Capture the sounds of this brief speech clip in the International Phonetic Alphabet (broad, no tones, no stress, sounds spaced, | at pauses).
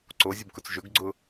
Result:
ǀ o zʲ ʊ b k ʊ t͡s ʒ ɵ ɡ ɡ͡ǀ ʊ